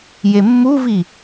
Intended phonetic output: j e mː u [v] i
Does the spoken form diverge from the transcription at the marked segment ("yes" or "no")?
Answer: no